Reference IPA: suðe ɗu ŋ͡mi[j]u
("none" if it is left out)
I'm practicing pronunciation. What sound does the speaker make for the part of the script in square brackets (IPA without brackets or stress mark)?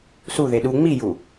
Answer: j